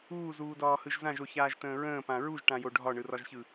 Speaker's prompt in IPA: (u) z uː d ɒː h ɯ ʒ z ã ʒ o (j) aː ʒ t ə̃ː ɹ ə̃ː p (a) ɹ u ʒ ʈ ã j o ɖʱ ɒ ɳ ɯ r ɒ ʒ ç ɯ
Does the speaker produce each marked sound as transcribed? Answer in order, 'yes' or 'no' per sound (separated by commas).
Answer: no, no, no